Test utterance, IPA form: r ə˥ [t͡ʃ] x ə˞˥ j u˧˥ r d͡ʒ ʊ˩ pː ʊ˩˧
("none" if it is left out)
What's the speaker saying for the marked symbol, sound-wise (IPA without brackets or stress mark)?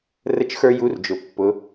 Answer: t͡ʃ